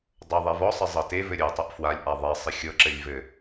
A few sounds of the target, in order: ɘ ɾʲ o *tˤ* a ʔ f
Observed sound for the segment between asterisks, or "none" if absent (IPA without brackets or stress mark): tˤ